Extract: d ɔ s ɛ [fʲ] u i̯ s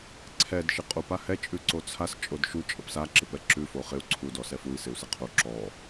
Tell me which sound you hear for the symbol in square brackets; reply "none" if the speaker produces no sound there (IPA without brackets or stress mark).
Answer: f